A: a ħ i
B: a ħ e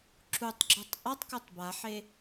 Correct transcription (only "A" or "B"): B